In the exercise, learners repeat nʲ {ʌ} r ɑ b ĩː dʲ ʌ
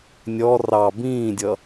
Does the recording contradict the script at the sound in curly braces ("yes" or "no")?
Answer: yes